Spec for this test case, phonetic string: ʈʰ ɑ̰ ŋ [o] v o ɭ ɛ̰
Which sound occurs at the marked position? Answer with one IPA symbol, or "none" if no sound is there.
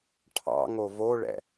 o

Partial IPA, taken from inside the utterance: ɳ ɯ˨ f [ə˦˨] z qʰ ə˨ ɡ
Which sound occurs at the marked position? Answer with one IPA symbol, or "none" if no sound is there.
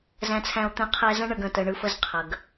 ə˦˨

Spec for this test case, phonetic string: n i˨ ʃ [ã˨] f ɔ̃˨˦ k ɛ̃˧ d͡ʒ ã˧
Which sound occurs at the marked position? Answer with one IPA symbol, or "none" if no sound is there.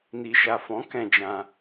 a˨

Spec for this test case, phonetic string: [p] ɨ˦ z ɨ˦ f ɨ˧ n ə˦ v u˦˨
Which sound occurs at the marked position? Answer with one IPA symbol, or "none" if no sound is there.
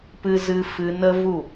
p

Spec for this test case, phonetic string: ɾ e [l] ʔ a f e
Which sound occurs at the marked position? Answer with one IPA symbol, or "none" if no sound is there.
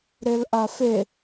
l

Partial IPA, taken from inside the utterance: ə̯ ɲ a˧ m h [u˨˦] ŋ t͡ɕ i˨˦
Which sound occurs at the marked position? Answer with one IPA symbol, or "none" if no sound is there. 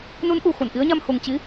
u˨˩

